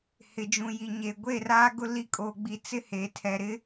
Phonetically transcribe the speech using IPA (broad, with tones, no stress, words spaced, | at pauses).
hɪ˨ d͡ʒũ˨ ji˨ɲe˨ ɡʷe˦˨raː˦ɡʊ˦ li˦ kʼoː˨ɡ͡bi˨t͡sɪ˦ heː˨tʰɛ˨ɾɪ˦